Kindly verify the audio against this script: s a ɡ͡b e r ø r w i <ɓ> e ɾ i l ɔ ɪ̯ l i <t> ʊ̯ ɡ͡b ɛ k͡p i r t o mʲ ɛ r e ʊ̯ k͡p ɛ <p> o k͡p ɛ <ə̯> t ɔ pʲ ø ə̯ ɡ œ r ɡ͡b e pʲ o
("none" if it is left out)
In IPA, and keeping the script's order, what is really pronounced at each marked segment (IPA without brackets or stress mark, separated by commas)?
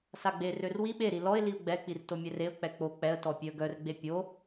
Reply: ɓ, none, k͡p, ə̯